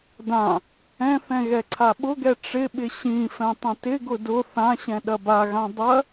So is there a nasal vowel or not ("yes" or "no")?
yes